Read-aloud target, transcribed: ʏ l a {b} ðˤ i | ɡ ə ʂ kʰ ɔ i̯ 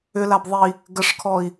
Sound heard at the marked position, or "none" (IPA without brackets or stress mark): b